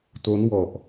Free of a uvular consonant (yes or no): yes